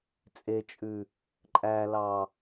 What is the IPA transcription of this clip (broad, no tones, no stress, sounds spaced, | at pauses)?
t͡sʼ e t͡ʃʼ ʉ | ǃʼ æ l ɑ